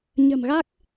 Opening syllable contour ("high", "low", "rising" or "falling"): low